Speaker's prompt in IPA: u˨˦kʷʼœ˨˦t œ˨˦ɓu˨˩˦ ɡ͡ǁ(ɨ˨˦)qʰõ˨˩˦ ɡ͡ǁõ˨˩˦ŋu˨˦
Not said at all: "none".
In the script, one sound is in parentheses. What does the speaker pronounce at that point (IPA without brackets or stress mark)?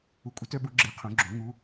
e˨˦